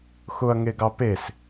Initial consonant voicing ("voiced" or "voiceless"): voiceless